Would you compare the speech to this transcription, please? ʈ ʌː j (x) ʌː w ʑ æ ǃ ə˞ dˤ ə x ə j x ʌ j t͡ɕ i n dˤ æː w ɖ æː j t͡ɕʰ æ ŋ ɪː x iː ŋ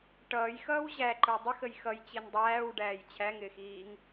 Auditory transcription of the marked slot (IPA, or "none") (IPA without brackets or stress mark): x